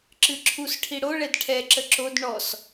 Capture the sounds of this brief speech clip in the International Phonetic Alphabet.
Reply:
ǁ ɨ ǁʰ u s ʈʰ i ɽ o ɭ ɛ d ʈʰ ɛ ǁ ə ǁ o d ɳ ɔ s

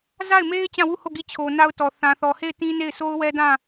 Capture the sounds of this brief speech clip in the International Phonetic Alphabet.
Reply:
z a˦˨ ɪ̯ m e˦ ɪ̯ t͡ɕ ã˦˨ w u˦˨ h o˦˨ ɡ i˦˨ t͡ɕʰ o˨ n a˦ ʊ̯ t ɔ˨ θ ã˨ θ ɔ˨ h e˦˨ ɪ̯ t ĩ˦ n e˦˨ ɪ̯ s o˦ ʊ̯ w ɛ˦ d ã˦˨

